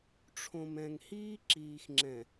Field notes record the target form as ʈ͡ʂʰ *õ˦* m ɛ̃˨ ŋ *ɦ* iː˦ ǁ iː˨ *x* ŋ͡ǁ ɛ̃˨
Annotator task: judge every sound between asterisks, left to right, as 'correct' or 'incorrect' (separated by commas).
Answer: incorrect, incorrect, correct